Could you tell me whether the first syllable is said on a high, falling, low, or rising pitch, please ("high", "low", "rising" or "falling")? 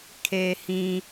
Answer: low